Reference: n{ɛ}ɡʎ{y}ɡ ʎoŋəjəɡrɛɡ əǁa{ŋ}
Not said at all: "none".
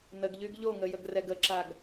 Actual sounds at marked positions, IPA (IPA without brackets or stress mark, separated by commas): ə, y, ɡ